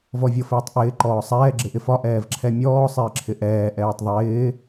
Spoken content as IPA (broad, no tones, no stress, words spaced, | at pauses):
vɔvʲɤfɪːtˤʔɪː ǃɔːsˤɛː ɡ͡ǁɪʔɪfɒ ʔɛːvǁʰɛmʲɔː sˤɪːǁʰɪʔɛː ʔɛːtˤðˤɪː